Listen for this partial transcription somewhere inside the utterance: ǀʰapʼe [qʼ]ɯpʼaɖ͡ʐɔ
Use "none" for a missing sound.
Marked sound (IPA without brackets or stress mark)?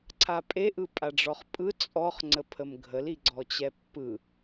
ʔ